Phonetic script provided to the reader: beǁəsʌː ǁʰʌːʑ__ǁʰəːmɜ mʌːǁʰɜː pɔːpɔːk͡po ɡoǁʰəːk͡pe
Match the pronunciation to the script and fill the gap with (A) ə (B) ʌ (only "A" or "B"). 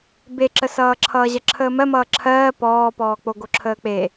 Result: B